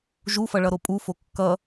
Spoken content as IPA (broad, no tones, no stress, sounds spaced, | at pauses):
ʒ u f ʌ ɭ ʌ ɾ o pʼ u f o kː ʌ